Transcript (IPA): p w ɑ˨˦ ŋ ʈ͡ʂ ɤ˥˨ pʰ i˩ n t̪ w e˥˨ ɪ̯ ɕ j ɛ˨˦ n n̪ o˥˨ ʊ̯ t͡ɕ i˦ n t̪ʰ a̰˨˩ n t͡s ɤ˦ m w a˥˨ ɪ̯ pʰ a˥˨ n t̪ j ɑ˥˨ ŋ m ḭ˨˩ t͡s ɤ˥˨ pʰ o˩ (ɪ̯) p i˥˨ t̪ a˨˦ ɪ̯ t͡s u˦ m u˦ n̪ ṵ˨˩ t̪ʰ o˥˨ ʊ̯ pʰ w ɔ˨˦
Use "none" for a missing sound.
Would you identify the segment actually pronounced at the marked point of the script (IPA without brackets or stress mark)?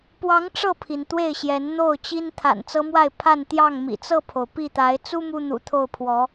ʊ̯